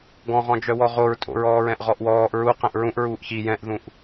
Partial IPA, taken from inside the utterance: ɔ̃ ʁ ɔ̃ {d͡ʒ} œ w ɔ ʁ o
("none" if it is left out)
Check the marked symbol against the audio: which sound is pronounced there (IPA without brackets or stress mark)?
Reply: d͡ʒ